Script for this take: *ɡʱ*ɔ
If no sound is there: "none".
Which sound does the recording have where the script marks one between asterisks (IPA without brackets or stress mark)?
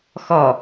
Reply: x